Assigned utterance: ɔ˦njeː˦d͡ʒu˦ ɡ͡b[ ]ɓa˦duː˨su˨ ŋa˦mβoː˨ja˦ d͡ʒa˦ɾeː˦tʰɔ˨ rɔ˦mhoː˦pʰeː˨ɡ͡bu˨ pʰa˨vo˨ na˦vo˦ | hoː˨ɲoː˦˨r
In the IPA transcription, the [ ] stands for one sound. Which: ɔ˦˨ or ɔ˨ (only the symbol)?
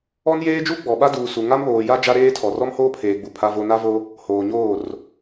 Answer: ɔ˨